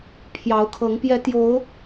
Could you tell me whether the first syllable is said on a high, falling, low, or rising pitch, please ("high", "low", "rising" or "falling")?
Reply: rising